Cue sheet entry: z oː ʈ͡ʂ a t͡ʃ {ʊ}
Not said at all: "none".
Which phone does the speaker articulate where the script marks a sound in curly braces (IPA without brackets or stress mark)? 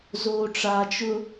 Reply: ʊ